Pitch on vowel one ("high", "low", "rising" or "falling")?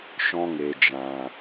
high